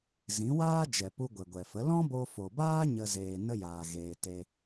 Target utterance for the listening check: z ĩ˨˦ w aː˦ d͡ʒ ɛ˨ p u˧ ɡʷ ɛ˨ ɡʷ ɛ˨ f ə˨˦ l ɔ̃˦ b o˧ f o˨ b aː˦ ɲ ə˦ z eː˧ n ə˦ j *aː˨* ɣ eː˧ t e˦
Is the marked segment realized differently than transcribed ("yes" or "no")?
no